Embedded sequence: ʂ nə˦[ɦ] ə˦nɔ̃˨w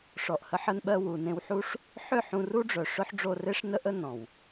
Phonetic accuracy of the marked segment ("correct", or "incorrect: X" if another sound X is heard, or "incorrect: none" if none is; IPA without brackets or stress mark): incorrect: ʔ